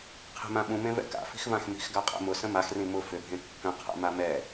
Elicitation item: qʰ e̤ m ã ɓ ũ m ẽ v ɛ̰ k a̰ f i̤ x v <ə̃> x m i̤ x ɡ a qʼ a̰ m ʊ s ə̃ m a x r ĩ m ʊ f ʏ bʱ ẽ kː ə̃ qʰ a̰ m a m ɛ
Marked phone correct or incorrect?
incorrect